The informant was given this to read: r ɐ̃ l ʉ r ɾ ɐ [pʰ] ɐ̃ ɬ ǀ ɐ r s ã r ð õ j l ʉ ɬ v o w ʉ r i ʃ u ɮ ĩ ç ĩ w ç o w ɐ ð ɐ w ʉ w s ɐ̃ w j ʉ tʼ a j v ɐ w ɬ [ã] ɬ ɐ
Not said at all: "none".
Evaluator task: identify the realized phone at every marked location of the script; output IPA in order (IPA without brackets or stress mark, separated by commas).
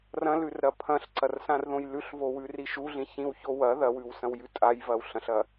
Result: pʰ, ɐ̃